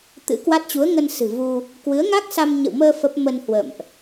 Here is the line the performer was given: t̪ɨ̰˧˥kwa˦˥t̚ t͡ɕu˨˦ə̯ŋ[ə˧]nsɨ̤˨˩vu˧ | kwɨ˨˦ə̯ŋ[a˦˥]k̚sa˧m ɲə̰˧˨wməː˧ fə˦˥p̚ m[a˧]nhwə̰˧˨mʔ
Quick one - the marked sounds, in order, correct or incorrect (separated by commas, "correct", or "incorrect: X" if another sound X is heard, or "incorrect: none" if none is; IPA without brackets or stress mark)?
correct, correct, incorrect: ə˧